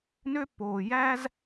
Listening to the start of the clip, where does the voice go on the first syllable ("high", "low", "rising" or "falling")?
high